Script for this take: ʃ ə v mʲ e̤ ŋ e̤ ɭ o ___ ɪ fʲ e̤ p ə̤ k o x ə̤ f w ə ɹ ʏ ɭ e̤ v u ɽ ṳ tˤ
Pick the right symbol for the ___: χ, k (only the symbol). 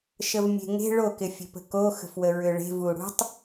k